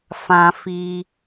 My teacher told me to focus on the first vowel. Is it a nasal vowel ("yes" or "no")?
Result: yes